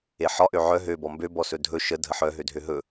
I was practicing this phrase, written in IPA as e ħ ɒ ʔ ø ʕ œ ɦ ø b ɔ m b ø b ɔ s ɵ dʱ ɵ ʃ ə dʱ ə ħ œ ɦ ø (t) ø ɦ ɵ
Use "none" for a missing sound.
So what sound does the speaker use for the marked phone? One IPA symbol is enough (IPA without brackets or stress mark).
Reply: dʱ